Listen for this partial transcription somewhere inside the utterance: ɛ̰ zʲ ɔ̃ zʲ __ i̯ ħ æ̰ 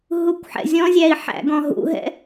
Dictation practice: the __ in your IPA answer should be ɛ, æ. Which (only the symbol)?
æ